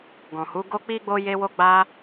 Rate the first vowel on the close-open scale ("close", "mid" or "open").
mid